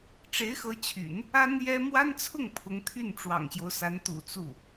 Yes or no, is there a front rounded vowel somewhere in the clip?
yes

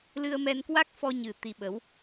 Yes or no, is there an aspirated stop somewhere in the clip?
no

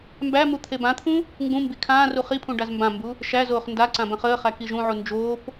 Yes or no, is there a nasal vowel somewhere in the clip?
yes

